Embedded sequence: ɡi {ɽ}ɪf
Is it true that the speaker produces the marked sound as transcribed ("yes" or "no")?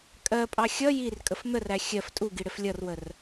yes